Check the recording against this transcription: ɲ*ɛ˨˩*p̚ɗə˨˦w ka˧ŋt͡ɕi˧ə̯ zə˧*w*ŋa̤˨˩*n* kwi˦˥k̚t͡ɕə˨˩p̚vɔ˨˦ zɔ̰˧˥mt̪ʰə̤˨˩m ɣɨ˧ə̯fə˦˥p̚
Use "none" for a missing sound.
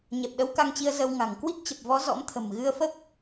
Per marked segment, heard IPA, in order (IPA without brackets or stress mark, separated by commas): ɛ˨˩, w, ŋ